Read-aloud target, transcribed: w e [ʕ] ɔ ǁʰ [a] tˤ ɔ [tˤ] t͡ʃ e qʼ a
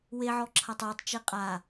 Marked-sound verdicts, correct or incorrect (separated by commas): correct, correct, correct